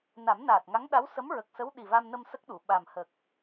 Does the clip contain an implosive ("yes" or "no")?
yes